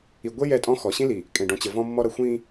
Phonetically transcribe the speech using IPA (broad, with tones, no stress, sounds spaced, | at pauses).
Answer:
i˨ ɡʷ e˦ j ɛ˦˨ tʼ ɔ̃˦ x ɔ˨ ɕ ĩ˦ l i˨ | kʼ ẽ˨ ɖ ɔ̃˨ t͡ɕ ə˨ v ɔ̃˦ mː ɔ˦ ɾ ʌ˨ xʷ ĩ˦